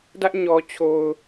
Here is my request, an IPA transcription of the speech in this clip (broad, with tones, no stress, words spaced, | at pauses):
dä˦ʔɲɔ˨t͡ɕʰo˨ʊ̯